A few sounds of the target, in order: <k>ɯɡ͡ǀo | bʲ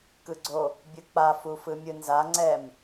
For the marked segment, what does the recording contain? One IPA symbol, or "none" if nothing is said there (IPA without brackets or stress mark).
k